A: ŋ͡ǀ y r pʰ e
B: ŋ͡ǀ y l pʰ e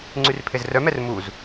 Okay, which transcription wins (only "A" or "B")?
A